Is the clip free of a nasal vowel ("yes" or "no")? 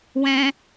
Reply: no